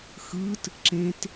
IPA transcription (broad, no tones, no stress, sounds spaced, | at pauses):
x ɯ t | ǁ ẽ t